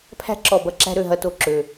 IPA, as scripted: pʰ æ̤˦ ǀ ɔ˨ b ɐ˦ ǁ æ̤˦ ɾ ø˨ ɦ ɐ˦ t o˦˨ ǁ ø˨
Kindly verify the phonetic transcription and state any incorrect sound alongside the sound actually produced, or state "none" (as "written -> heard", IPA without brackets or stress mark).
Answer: ǀ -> ǁ